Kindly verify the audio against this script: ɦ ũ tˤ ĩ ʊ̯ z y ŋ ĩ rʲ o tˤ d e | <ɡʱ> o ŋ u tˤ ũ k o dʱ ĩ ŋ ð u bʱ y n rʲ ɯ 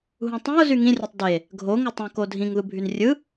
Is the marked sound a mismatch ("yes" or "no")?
no